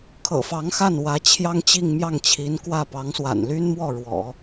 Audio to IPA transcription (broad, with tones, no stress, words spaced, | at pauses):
kʰɤ̰˨˩fɑ˧˥ŋxa˥˩n wä˧˥ t͡ɕʰjɑ˥ŋt͡ɕi˥˧ŋmjɑ˥˩ŋt͡ɕʰi˧˥n kwä˥˩ pɑ˧˥ŋswa̰˨˩nly˥nmwɔ˥˩ ɻwɔ̰˨˩˦